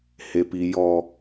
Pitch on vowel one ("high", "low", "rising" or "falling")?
high